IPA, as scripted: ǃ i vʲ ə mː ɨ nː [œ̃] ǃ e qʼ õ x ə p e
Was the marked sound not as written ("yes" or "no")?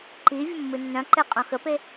no